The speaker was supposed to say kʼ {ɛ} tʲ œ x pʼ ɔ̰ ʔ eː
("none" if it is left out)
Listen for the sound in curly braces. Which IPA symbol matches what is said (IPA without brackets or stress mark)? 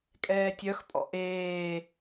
ɛː